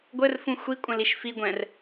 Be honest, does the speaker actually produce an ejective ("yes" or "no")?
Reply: yes